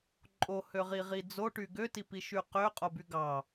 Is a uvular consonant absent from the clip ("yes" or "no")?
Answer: no